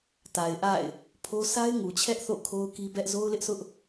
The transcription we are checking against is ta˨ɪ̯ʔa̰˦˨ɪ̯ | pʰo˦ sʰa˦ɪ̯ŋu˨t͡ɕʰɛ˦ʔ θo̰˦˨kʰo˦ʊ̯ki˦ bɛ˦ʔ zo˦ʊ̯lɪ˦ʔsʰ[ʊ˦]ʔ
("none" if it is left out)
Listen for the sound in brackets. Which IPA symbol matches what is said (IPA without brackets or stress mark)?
ʊ˦